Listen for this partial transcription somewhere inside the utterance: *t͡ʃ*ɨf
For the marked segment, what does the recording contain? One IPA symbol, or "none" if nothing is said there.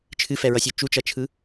t͡ʃʰ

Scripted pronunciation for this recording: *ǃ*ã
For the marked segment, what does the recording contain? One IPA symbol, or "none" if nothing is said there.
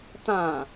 t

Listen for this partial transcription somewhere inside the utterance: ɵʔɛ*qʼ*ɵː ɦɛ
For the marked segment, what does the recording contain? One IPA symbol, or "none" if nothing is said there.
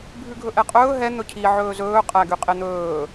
qʼ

